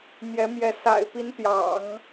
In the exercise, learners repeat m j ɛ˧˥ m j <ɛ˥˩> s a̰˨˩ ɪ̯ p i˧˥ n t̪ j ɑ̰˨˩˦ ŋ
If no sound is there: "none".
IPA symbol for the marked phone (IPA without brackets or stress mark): ɛ˧˥